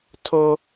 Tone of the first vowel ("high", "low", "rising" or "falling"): high